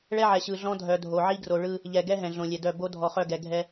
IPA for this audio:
ɭɛ˦ʕɛ˨ɕɯ˨ɮɔ̃˦ dʱœ˨dʱo˨ʕi˦ɡro˨ ɭɯ˦ | ʎɛ˨ ɡɛ˦ ɦɛ̃˨ɮõ˨lʲɛ˨dœ˦˨ bo˦ dʱɔ˨χœ˦˨ɡɛ˨ ɡʱɛ˦

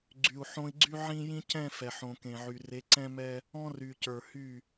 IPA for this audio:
ɡ͡ǀy˨u̯ħõ˦i̯ ɡ͡ǀy˦ʕĩ˦ jĩ˦cɛ̃˦˨ fɛ˨ħõ˨kẽ˨ʕy˨ re˨˦ǀɛ̃˦mɛ˦ | ɔ̃˦ry˨ cə˞˨hy˦˨

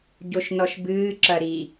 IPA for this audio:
ɟoʃnɔʃbɨː ǁɐɾi

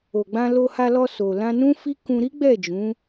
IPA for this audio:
o˨ɡ͡bã˧ lo˧ha˧lɔ˧ so˨ lã˧nũ˦fi˦ kũ˧ ɾi˦ɡ͡bɛ˦˨ d͡ʒũ˨˦

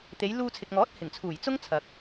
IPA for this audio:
t̪e˨˧jluː˧t͡sʰɪ˨k̚ŋɔː˨˥t̚ hɪ˨˩ŋt͡sʰuː˨˩j t͡sʊ˥ŋt͡sʰɐ˨k̚

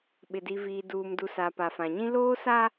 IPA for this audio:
ɓɪ˨di˨viː˨ duː˨mdu˨ sa˨pa˨fã˨ɲĩ˦ loː˦sa˦

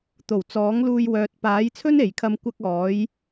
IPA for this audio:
t̪o˨˩w t͡sɔː˨˥ŋluː˧j wœː˨t̚paː˨˥jt͡sʰɵ˥n e˨˧jkʰɐ˥m kʷɐ˥k̚ ɔː˨˥j

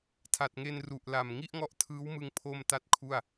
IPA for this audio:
tʰa˨˩t̚ŋe˧n ru˨˩ʔla˨˩m ŋi˥˩ʔŋɔ˦˥ʔtʰɯː˦˥wmɯ˧ŋ pʰo˥˩mta˥˩t̚kʰu˥˩a̯

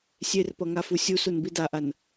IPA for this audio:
sʲerpʌŋafu sʲusunbi daʔan

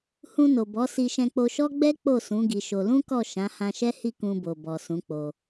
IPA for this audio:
hũ˧no˨bɔ˨˦ si˧ʃɛ̃˧k͡po˧ʃɔ˦ ɡ͡bɛ˦ k͡po˦˨sũ˨˦ ɡi˧ʃo˧ lũ˦kɔ˦˨ ʃã˨˦hã˧ʃɛ˦hi˦˨ kũ˧bo˨ bɔ˨sũ˨˦k͡po˧

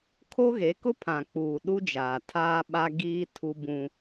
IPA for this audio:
kʰo˦ɣe˨˦ kʊ˦pʰã˨ k͡puː˨ɗu˦d͡ʒaː˨tʰaː˦ ɓa˦ɡiː˦ tʰu˦bũ˦

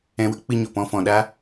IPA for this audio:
ɛ̃˧wə˦k͡pɨ˧ ɲo˨pɔ̃˧ fɔ̃˨ɗa˦

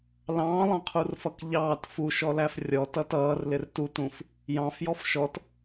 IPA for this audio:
lɑ̃ːlˠɑ̃qʰurfʌk ʎɑːt fuʃɔlæf rʲɔtʌt ʌːrlɪr tutũf | jɑ̃fjɔf ʃɔt

